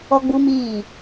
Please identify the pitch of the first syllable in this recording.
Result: high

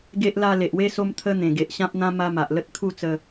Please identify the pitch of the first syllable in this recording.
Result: high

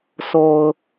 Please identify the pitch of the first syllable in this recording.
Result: low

